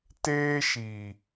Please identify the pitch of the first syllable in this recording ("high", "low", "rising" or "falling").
high